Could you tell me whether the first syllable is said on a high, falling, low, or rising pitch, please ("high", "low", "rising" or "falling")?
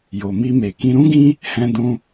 low